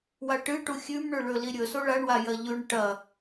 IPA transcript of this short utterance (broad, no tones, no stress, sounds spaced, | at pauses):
w a ʈ ɨ ʈ u xʲ ʉ m ɳ ɵ ɭ ɵ l i ɾʲ ɵ s o ɭ a ɳ w a j ɐ ʎ ʉ ɳ ʈ ɐ